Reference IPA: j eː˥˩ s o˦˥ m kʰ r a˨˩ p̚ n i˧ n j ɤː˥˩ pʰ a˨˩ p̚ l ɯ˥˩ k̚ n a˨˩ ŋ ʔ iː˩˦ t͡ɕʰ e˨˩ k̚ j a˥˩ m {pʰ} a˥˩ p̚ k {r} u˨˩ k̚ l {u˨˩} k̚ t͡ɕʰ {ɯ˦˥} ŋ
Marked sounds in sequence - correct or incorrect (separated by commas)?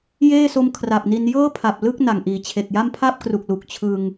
correct, correct, correct, incorrect